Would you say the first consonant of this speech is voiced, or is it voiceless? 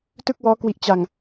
voiceless